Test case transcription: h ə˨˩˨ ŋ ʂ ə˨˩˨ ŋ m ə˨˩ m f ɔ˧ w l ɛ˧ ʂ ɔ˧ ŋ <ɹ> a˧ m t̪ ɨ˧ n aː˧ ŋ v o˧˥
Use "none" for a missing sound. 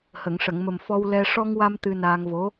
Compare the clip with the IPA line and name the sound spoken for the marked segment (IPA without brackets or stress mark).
w